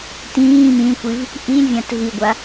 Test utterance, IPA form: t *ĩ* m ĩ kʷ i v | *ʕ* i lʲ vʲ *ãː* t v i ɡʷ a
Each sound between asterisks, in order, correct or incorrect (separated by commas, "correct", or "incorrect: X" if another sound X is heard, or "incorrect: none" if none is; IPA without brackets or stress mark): incorrect: ĩː, incorrect: ʔ, incorrect: ã